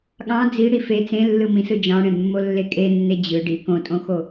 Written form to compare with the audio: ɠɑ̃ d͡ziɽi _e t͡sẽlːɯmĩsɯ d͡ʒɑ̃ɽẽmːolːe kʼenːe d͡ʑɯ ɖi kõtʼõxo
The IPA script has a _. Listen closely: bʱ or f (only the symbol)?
f